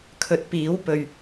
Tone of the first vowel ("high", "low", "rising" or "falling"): rising